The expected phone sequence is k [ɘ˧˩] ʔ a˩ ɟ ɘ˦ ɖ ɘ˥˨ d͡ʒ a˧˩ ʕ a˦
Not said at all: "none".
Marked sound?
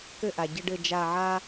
ɘ˥˨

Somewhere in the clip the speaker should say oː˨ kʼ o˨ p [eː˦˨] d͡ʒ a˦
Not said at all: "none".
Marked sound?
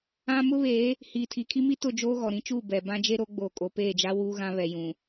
eː˦˨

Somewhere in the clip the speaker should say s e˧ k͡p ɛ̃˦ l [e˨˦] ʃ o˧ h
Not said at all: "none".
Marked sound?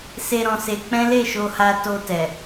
e˦˨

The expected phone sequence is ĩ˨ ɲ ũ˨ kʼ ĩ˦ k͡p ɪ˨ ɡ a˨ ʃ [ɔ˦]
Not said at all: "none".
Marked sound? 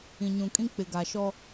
ɔ˦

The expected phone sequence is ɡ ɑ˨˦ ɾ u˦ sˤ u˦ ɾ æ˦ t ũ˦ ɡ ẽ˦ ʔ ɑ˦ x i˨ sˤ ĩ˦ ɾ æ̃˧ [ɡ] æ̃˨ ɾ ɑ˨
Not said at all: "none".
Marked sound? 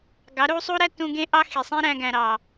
ɡ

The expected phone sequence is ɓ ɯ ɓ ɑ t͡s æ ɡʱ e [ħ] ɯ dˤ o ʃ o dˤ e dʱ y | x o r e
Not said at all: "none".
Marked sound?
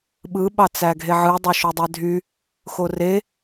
ʕ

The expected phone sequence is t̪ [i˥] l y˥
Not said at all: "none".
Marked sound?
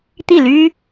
i˥˩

